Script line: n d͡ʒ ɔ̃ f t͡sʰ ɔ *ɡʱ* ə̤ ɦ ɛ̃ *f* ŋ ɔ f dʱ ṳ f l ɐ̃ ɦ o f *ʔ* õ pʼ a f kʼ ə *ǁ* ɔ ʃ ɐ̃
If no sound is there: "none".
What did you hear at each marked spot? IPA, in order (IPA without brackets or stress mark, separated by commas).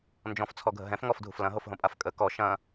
ɡʱ, f, ɦ, k